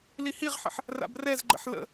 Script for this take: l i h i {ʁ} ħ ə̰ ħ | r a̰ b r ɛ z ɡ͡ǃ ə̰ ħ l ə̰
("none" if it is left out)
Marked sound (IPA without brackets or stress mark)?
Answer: ʁ